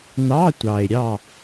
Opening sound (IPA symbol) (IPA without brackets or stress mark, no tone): n